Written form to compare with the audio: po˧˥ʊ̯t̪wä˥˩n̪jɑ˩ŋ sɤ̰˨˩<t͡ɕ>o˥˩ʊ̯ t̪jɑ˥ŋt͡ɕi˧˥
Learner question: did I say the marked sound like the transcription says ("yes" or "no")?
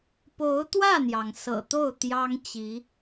no